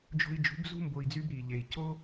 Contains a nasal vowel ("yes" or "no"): no